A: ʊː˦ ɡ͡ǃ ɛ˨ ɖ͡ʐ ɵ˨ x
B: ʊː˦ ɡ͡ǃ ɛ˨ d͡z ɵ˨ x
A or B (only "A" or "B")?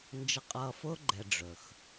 A